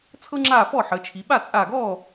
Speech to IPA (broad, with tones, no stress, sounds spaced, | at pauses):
t͡sʰ ɤ˧ ŋ͡ǁ aː˧˩ f ɔː˥˩ ħ əː˩˧ t͡ʃʰ i˩˧ ɓ a˥˩ t͡sʼ aː˧˩ ɡ ɔː˥˩